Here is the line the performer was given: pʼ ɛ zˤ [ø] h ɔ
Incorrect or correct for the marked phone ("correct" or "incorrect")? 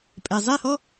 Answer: incorrect